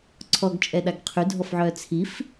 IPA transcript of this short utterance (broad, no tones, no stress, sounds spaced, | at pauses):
ǀʰ ɔ ɡ t͡ʃʼ ɛ ɗ a ɡ qʰ y dʱ ɔ f ʕ œː t͡sʰ i f